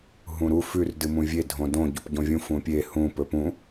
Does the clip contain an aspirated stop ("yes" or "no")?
no